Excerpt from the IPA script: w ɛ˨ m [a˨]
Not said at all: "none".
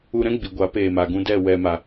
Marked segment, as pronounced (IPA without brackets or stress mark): a˨